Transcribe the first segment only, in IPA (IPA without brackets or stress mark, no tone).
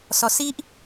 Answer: s